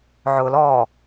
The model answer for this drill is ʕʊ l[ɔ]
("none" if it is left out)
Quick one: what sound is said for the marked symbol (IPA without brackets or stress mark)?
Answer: ɔ